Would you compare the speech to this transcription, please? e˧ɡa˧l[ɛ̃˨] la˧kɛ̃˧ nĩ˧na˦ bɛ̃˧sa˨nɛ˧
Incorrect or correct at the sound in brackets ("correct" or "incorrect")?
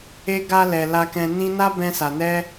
incorrect